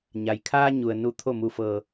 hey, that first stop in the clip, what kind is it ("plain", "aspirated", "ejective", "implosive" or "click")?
aspirated